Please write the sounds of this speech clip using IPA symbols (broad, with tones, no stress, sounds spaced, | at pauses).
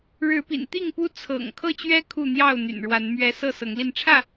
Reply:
ɻ ɻ̩˨˦ p ḭ˨˩ n t̪ i˥˨ ŋ p u˦ t͡sʰ ɤ̰˨˩ ŋ kʰ ɤ˥˨ t͡ɕ ɥ ɛ˦ kʰ u˥˨ n̪ j ɑ˥˨ ʊ̯ n̪ y̰˨˩ n ɻ w a˨˦ n m ɥ ɛ˦ s ɤ˥˨ s ɤ˨˦ ŋ l i˧ n ʈ͡ʂʰ ä˥˨